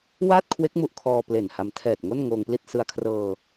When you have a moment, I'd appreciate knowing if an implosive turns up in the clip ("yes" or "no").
no